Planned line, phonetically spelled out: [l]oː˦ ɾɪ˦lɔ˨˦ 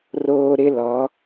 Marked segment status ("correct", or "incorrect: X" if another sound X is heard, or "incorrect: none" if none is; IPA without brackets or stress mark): incorrect: r